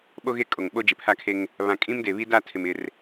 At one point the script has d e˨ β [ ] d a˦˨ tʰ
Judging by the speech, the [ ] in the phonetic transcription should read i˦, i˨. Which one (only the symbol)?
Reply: i˦